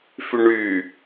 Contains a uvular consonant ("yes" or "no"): no